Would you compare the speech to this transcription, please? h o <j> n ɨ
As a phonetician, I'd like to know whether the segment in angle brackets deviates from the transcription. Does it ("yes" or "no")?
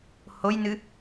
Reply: no